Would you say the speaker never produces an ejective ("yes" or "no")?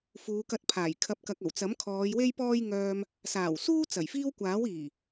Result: yes